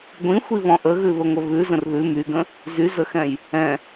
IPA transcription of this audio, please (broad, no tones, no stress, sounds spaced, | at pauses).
ɡʷ ĩ xʷ i β ɔ̃ ʔ ə ɣ ʉ β ə ŋʷ ə β ʉ z ə̃ r ð ʉ m y ɡ ə̃ | z y z ə x ɛ̃ j | ɛ̃